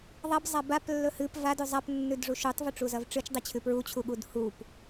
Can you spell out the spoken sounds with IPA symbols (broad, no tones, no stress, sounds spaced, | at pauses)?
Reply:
ðˤ ɐ b zˤ a b a p lː ɵ h ɨ p v a d ʉ zˤ a p nː ʉ d ʐ u ʃ u tˤ v ʉ ʈ͡ʂ u z ɐ v ʈ͡ʂ ɨ t͡ʃ dˤ i t͡ɕʰ ʉ p ɹ u t͡ɕʰ u ɠ u d h u p